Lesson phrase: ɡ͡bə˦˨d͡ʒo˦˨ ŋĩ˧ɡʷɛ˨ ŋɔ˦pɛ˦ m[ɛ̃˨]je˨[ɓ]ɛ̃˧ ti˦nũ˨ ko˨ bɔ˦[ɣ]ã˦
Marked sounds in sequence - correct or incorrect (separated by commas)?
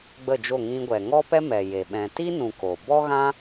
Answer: incorrect, correct, correct